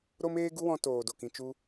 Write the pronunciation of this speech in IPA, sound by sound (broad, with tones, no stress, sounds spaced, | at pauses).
ɾ o˦ m eː˦ ɡ u˦ w ɔ̃˧ t oː˨ d o˨ k ĩ˨ t͡ʃ u˧